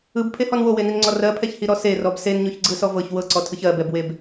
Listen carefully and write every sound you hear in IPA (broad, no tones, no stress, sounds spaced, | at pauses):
ɯ b pʰ e h ɔ n w o w e n i n ŋ͡ǀ ɔ r ɜ pʰ ɛ ç h i ɾ ɔ s e r ɔ b s e n ɲ o ç ɡ͡ǀ ɯ s ɔ v ɤ ç w ɤ ǀ ɔ tʰ ɯ ç ɜ b ɛ b w e b